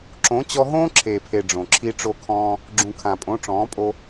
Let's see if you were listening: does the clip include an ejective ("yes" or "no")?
yes